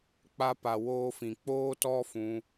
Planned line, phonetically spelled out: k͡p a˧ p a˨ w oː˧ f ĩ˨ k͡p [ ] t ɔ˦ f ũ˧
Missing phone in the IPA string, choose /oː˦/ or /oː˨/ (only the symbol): oː˦